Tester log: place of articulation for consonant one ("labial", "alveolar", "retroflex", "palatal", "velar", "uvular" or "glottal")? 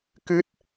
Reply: velar